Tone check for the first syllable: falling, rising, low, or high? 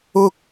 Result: high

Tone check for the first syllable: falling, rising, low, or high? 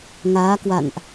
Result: rising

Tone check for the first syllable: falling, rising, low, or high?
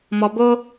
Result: low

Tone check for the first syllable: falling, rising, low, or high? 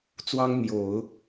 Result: high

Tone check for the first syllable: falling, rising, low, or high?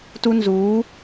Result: high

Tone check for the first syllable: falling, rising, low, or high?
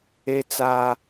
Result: high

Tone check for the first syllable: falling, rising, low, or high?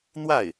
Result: falling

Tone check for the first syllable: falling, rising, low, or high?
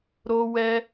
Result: high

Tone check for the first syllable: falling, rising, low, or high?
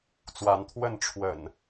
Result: rising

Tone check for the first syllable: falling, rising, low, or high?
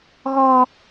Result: high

